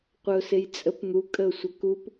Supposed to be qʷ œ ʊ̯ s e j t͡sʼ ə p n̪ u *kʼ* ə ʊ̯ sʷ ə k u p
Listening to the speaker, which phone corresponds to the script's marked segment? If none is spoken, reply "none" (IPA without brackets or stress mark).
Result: kʼ